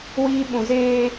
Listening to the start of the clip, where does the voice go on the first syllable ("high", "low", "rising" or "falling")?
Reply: high